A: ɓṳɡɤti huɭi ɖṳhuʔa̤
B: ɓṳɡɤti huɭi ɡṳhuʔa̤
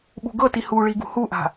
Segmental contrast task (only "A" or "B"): B